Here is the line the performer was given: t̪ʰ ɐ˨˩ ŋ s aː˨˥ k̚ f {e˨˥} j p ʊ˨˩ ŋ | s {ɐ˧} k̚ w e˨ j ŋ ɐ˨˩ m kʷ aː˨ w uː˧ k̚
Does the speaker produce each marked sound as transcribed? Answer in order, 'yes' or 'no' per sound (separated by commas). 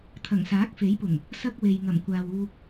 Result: yes, no